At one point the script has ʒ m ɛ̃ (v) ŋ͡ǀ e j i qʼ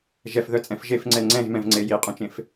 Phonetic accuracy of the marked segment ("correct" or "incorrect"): correct